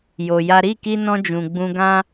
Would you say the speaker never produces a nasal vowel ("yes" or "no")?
no